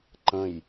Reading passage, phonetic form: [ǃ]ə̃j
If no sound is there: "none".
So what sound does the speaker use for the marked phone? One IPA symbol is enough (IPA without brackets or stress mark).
ǃ